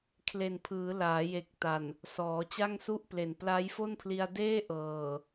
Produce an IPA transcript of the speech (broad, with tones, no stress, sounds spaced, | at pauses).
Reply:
kʰ l e˨˩ n pʰ ɯː˩˦ l aː˩˦ j e˨˩ k̚ t a˨˩ n | s ɔː˩˦ t͡ɕ a˥˩ ŋ s u˥˩ ʔ p l e˨˩ n p l a˦˥ j f o˥˩ n pʰ l i˧ a̯ d eː˥˩ ʔ ɤː˨˩